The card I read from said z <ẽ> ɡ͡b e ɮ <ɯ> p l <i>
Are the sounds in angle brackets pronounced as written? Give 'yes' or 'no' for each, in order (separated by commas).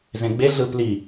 yes, yes, yes